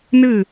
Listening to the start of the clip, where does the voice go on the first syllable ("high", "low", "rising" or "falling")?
falling